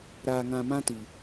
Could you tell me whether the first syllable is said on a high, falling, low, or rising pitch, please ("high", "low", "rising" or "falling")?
low